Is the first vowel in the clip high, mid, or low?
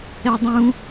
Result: mid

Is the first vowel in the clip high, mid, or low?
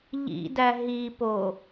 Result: high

